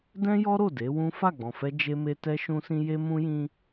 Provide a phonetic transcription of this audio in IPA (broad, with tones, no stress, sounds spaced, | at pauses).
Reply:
d ɛ̃˦ j ɔ˦ ɾ o˦˨ d e˨˦ w ũ˦ f a˦˨ ɡ͡b ɔ̃˨ f ɛ˧ d͡ʒ e˦ m e˦ t ɛ˧ ʃ ũ˧ s ĩ˧ j e˦ m ũ˦ j ĩ˦